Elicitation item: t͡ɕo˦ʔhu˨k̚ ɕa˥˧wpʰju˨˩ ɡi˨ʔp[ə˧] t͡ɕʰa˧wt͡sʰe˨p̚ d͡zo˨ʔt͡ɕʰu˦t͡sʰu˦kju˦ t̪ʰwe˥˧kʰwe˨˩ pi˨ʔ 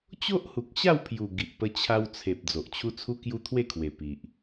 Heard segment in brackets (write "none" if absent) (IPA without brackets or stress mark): ə˧